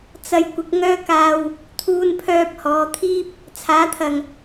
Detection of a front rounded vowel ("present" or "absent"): present